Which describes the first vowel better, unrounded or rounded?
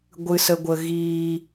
unrounded